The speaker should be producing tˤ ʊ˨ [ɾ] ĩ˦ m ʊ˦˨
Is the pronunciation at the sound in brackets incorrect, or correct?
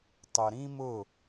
correct